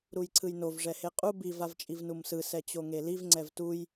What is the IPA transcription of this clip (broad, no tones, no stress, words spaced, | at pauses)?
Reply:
ɾujǀʰɯjnov ʐɛheqʼu biv avt͡ʃʼivnumsɯ sɛt͡ɕoŋeliv ŋ͡ǀɛvtuj